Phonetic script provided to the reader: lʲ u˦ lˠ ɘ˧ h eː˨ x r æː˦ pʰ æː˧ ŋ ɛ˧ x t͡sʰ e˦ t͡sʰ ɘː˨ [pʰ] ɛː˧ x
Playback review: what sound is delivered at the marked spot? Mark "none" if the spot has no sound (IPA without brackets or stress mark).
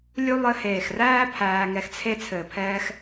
pʰ